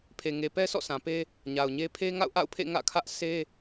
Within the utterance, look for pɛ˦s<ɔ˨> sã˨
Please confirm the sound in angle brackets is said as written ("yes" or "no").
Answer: no